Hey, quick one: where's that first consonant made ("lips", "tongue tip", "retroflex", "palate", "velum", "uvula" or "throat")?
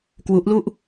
velum